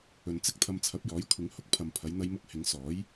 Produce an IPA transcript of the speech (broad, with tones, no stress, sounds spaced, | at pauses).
ɵ˨ n t͡s ɪ˥ k̚ t̪ʰ ɐ˧ m t͡sʰ ɐ˨˥ p̚ j ɔː˨˥ j kʷʰ ɪ˨˥ ŋ h ʊ˧ k̚ pʰ ɐ˨ m pʰ ɐ˨˧ j n̪ ɐ˧ j m ʊ˧ k̚ h ɪ˨˧ ŋ s ɔː˨˥ j